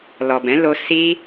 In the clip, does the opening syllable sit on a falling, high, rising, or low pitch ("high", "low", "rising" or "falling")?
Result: low